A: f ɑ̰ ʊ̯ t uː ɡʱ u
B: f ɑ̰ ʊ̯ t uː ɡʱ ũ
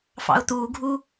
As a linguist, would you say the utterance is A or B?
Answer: A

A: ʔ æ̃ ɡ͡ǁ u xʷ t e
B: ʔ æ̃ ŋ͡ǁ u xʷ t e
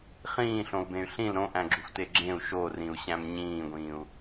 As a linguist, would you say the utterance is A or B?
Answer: A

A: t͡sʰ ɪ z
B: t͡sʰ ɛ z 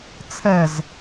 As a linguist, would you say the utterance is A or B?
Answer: B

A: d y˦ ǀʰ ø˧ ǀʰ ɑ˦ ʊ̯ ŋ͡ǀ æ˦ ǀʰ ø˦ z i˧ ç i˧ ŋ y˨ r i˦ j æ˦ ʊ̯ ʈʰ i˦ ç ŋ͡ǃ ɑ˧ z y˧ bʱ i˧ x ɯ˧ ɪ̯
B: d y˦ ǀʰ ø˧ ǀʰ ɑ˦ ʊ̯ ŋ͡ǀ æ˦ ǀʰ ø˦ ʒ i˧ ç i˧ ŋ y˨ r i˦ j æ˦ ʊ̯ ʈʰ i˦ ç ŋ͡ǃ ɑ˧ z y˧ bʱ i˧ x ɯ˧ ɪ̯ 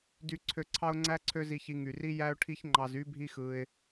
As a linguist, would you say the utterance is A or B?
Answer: A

